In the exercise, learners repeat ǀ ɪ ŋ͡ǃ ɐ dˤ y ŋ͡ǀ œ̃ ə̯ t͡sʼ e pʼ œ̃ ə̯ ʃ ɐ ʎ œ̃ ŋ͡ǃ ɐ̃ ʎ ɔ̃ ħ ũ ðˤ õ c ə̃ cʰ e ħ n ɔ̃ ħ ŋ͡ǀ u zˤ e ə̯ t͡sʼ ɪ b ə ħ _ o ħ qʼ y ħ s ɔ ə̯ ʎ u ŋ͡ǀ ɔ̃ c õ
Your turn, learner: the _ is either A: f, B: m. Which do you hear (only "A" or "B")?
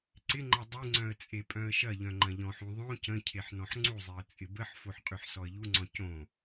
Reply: A